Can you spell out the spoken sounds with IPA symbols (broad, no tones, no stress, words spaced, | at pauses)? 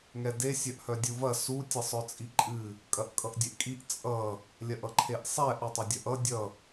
ŋɛde sʲœʔhœdʲuvɐ su tʲʌsˤœt͡sʼiǃʼɨ | kʼɐʔkʼʌʔdʲeʔkʼiʔ t͡sʼʌ | lʲɐʔʌǃʰeʔsˤɛ ʔʌtˤɐdʲɐʔʌ dʲʌ